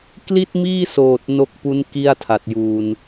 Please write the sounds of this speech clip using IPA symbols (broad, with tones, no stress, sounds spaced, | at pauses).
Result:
k l i˥˩ t̚ m iː˥˩ s oː˨˩ t̚ n o˦˥ k̚ p u˦˥ n k i˥˩ a̯ tʰ a˨˩ t̚ j uː˨˩ n